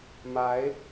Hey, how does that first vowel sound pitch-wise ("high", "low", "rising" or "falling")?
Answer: rising